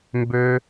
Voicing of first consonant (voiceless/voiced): voiced